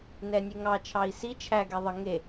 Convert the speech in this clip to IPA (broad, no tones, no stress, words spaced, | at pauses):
nɛnʲeŋɑ t͡ʃʰɑi̯si t͡ʃʰæ ɡɛðˤə ŋe